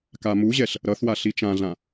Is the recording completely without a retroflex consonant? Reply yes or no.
yes